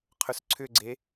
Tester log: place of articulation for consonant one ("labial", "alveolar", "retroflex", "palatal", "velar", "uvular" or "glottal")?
uvular